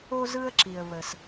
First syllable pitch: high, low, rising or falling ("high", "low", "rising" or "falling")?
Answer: high